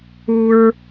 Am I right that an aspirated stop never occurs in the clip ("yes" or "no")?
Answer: yes